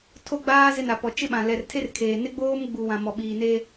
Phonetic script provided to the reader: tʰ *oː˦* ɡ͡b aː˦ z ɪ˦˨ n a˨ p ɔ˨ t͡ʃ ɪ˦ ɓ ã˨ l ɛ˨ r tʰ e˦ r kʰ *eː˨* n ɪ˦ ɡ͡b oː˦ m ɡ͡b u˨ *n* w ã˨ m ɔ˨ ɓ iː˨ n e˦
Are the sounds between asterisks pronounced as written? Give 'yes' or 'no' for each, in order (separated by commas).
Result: no, yes, no